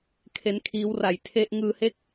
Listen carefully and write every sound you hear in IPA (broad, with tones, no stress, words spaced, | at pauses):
kʰe˦˥nkʰiː˦˥wra˨˩j tʰe˦˥ʔ ŋɯː˧he˥˩k̚